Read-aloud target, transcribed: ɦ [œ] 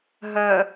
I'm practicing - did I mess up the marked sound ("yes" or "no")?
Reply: no